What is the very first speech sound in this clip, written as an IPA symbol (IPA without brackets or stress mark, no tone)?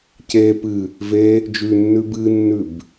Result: c